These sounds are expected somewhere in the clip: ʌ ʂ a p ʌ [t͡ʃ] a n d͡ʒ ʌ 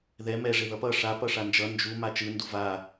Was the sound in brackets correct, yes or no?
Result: no